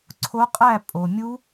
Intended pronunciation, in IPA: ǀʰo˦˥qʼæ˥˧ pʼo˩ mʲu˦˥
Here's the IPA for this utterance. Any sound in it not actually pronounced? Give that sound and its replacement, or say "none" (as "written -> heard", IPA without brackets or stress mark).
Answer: none